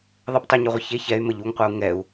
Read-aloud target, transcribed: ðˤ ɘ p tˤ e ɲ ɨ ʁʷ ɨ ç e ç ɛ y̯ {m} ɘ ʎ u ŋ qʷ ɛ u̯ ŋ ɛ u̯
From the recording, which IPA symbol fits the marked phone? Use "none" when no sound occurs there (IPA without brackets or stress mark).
m